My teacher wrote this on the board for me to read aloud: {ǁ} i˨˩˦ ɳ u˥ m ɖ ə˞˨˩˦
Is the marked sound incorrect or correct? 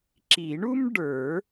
correct